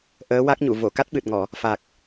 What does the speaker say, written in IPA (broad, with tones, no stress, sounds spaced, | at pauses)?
ʔ əː˧˥ w a˦˥ k̚ ɲ u˨˩˨ v o˨˩˨ k a˦˥ t̚ ɓ ɨ˨˩ t̚ ŋ ɔ˨˩˨ | f a˨˩ k̚